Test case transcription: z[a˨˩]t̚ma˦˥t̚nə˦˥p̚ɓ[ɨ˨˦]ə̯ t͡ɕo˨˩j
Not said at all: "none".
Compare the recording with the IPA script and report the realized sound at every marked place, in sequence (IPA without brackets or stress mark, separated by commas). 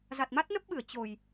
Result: a˨˩, ɨ˧˩